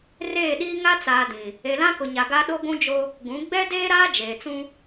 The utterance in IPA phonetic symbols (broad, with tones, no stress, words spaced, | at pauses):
reː˦˨ɗiː˦ ŋa˦t͡saː˨ dĩ˨ | e˨lã˦kʊ˨ɲa˨ ɡa˦ ɗo˦ɡʷũ˦d͡ʒo˦ | ɡũ˨˦ ɡ͡bɛ˦ deː˦ɾaː˦ d͡ʒeː˨t͡sũ˦